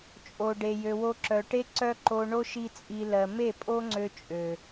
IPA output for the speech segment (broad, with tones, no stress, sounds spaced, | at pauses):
t͡ʃʼ o˨ ɖ e˨ j ø˨ w o˧ ǁ œ˨ ʈ e˦ ǀ œ˦ ǃ o˧ ɳ o˦ ʃ i˦ t͡sʼ i˧ l ɜ˨ m e˦˨ pʼ o˦ ŋ͡ǀ ø˧ t͡ʃʼ ø˨